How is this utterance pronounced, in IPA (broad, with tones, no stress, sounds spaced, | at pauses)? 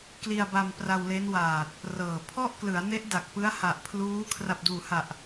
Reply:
k l i˧ a̯ b a˧ m p r a˧ w l e˦˥ n w aː˨˩ t̚ | r ɤː˨˩ pʰ ɔ˥˩ ʔ k l ɯ˩˦ a̯ n e˦˥ ʔ d a˨˩ k̚ p ɯ˦˥ a̯ h a˨˩ ʔ pʰ l uː˦˥ kʰ r a˨˩ p̚ d uː˨˩ h a˨˩ ʔ